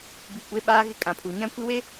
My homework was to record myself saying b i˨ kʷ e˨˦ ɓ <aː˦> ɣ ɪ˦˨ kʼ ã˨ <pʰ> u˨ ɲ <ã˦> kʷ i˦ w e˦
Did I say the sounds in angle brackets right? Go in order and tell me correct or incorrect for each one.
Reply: correct, correct, correct

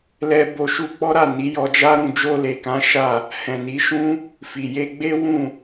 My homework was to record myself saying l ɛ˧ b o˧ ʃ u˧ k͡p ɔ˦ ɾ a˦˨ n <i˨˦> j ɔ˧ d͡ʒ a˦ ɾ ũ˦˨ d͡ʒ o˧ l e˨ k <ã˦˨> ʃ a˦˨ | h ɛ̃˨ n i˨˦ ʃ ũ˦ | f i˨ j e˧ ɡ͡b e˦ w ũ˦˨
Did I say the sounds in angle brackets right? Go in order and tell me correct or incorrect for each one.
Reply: correct, incorrect

